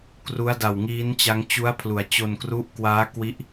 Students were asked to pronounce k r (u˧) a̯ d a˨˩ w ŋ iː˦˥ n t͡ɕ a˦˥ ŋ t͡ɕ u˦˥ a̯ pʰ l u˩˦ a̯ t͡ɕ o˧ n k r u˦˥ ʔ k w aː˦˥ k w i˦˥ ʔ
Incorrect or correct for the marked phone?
incorrect: u˦˥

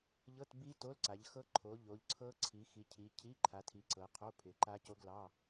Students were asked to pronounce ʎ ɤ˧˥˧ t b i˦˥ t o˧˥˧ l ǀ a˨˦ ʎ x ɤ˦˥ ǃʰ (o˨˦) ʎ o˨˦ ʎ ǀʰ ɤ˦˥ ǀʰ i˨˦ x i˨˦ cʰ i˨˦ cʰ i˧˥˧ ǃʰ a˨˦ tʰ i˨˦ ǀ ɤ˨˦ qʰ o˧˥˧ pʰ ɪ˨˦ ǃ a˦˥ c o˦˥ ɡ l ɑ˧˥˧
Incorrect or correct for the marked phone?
correct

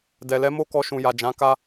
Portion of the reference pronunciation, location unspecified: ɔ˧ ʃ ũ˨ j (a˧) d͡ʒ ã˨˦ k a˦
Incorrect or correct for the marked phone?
incorrect: a˨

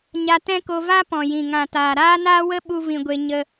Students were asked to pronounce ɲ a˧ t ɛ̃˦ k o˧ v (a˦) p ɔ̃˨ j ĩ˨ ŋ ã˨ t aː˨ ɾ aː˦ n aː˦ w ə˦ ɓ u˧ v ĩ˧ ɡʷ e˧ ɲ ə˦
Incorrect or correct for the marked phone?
correct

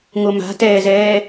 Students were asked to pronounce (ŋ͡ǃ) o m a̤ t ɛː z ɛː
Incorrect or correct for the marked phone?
incorrect: ŋ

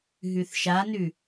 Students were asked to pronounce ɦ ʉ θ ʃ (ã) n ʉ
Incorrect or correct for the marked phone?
incorrect: a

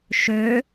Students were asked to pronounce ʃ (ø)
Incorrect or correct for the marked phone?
correct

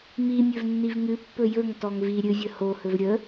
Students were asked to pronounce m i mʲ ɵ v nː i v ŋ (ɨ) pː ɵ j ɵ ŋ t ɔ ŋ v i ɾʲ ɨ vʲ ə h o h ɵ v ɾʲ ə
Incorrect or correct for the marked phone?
correct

